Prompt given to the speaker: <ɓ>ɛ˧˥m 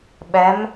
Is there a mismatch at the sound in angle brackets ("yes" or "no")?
no